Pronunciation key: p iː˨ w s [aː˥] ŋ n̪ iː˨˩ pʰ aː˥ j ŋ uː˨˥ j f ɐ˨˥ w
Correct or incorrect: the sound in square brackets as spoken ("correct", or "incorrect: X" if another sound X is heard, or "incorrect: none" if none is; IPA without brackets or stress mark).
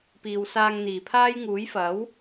incorrect: aː˧